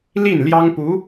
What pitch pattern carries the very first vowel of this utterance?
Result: falling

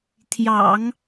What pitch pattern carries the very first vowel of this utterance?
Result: low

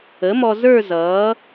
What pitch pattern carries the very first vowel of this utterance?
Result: rising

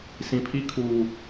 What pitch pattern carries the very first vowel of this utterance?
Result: low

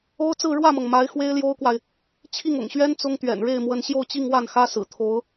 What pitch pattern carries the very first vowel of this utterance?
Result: high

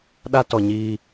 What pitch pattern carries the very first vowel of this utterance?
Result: high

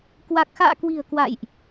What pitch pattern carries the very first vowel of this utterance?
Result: low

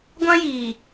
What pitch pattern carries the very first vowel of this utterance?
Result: high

